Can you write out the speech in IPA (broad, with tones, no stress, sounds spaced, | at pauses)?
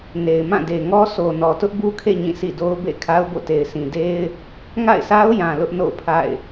n e˨ ɪ̯ m ã˦˨ d e˨ ŋ ɔ˦ s o˨ n ɔ˨ t ʊ˦ ʔ b u˦ kʰ ḛ˦˨ ɲ ĩ˦˨ s ḭ˦˨ d o˦ ʊ̯ b ḛ˦˨ kʰ a˦ ʊ̯ b o̰˦˨ t e˨ ɪ̯ sʰ ĩ˨ d e˦ ɪ̯ | ŋ a̰˦˨ ɪ̯ s a˦ ʊ̯ j ã˨ l ʊ˦ ʔ n o̰˦˨ ʊ̯ pʰ a̰˦˨ ɪ̯